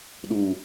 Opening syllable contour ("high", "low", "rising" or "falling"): low